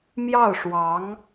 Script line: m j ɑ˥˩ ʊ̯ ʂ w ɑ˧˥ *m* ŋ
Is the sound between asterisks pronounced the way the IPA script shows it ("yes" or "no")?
no